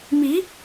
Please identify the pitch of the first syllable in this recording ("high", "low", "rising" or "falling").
rising